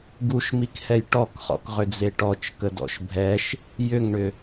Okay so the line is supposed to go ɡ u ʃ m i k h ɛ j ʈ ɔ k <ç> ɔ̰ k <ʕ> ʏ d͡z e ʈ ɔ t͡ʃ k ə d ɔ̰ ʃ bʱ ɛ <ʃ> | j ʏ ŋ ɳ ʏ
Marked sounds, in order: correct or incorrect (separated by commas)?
incorrect, incorrect, correct